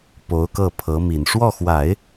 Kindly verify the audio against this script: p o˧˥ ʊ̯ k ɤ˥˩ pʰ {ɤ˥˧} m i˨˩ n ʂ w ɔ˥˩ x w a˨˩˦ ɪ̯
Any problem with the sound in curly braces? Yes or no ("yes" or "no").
yes